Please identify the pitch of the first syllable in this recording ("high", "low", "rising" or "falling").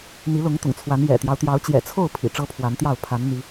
rising